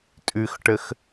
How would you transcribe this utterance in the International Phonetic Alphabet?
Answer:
tʼ ʉ x ʈ ə x

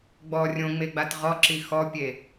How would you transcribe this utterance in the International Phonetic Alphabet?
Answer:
ɡ͡b ɔ rʲ õ ŋ͡m e ɡ͡b a t ʁ ɔ ǁ i x ɔ pʲ e

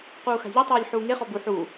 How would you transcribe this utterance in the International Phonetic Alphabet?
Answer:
q uː x a̤ ʎ ɵ tˤ ɛː lʲ ħ uː ŋ e χ ɔ b u ħ uː

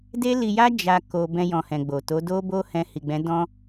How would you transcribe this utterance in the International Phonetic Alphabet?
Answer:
d e˦ l i˧ j a˦ d͡ʒ a˦ k o˧ b ɛ̃˧ j ɔ̃˨ h ɛ̃˨ ɡ͡b o˨ t o˨˦ d o˦ b o˦ h ɛ̃˧ h i˨ ɡ͡b ɛ̃˨˦ d ɔ̃˧

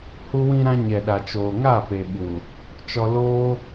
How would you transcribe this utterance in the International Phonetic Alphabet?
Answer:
h u˧ w ĩ˧ ɾ ã˧ ɲ ɛ˨ ɗ a˨ t͡ʃ oː˨ ŋ aː˦˨ p e˨ ɓ u˨ | t͡ʃ ɔ˧ l oː˦

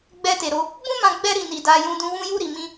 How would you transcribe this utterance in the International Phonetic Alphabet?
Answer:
ɡ͡b ɛ˧ t e˨ ɾ o˧ | b ũ˦ m ã˧ ɡ͡b ɛ˧ ɾ i˨ n i˨ d a˧ j ũ˧ d ũ˧ w ũ˧ j u˧ ɾ i˨ m ĩ˧

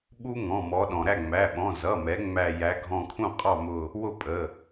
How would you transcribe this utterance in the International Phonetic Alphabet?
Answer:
ɓ u˦˥ ŋ ɔ̃˩˧˩ m ɔ˩˧ ɗ ɔ̃˩ ɾ æ˥˩ ŋ͡m æ˩˧˩ ɓ ɔ̃˩˧˩ z ʌ˩˧˩ m ɛ˩˧ ŋ͡m æ˧˩ j æ˩˧ ɡʱ ɔ̃˧˩ kʰ ũ˥˩ qʼ ɑ˥˩ m ʊ˧˩ | w ʊ˥˩ pʼ ə˩˧˩

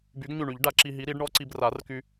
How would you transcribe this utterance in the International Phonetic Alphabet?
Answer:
b y˨˥ ɡ ɲ y˧˩ ɳ y˨˩˦ ʎ ɖ a˨˩˦ ǁ i˧ ɦ i˨˥ ɾ i˨˥ ɖ ɳ ɔ˦˥ ǀ i˧ b r a˨˩˦ r k y˧

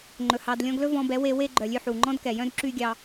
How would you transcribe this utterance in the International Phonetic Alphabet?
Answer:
ŋ͡ǃ ɵ˨ h ɑ˧ d lʲ ɔ̃˦ ɡ l ɵ˦ v ɔ̃˧ b ɛ˨˦ w e˧ w e˦ ɡ͡ǃ œ˨ lʲ ʉ˧ ħ u˨ ŋ͡ǃ ɔ̃˦ d k ɛ˨ j œ̃˦ d ǁ y˦ ɡʲ ɑ˧

